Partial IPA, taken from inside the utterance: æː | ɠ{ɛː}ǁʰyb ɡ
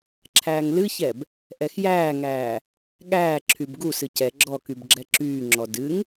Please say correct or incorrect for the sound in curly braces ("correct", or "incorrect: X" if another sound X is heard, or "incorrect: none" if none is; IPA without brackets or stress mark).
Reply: incorrect: æː